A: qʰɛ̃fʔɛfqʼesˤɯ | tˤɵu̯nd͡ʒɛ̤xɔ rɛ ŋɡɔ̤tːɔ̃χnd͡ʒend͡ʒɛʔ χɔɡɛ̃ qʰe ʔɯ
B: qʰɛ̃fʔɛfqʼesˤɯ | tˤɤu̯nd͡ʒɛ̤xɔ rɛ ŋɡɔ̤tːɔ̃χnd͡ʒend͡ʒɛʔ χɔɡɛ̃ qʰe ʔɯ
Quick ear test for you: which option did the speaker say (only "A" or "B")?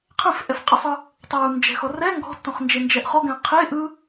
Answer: B